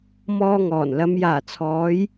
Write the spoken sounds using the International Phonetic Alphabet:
m ɔː˧ ŋ ɔː˨˩ n l ɐ˨˧ m j aː˨˩ t͡sʰ ɔː˨˧ j

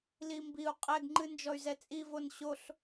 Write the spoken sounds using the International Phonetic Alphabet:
l i m b i u̯ qʼ ɛ ɡ ŋ͡ǃ ɨ n d͡ʒ ɔ y̯ z ɛ t͡sʼ i v o n ɕ o ɬ

